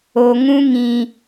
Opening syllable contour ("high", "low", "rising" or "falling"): low